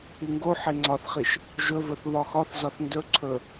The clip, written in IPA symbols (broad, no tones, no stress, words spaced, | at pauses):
iŋɡo ħeŋ͡ǀɒθχiʃ | ʒɵvɵθ βɒxɒθ zɒθndɵ ǀʰɵ